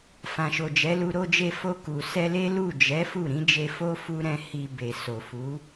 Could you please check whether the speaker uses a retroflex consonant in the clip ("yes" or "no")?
no